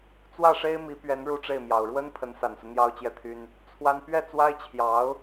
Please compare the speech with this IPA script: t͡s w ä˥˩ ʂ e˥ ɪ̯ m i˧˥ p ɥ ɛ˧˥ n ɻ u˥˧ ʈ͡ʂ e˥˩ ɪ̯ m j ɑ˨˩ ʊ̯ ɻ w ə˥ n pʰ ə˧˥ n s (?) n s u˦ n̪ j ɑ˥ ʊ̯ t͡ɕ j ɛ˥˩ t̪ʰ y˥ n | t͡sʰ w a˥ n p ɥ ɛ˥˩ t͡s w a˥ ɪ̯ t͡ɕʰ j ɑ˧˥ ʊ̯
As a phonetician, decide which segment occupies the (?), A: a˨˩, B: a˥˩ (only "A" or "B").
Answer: A